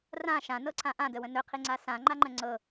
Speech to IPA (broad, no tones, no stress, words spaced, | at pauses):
rã ʃãnɤǀʰã ʔãdəwə̃ nɵqʰiŋ͡ǀa sãŋ͡ǃaŋ͡ǃə̃ ŋ͡ǀɤ